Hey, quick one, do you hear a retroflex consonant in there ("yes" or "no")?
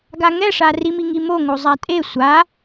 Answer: yes